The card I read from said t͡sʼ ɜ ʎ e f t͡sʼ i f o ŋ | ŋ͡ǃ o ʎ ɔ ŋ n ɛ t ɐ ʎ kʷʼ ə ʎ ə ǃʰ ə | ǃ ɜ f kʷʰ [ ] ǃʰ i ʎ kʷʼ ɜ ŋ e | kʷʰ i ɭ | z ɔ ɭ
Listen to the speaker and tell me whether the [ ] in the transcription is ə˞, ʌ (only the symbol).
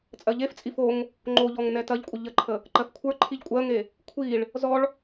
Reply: ə˞